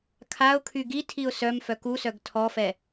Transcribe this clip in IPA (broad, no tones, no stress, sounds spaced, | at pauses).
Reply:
kʰ a ʊ̯ kʰ y ɡ i tʰ i ʊ̯ s œ m f œ k u s œ ɡ tʰ ɔ f ɛ